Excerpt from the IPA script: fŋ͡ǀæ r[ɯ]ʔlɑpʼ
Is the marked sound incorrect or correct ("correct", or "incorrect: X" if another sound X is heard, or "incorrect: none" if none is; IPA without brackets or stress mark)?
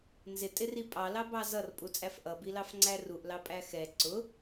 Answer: incorrect: u